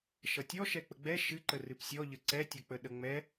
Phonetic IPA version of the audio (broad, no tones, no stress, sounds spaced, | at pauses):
ʃ ʌ tʲ ɔ ʃ ɛ k͡p ə ɡ͡b ɛ ʃ ɨ ǃ ə r ɨ p sʲ ɔ ʎ ə ǀ ɛ tʲ ʌ k͡p ə ɗ ə ŋ͡m ɛ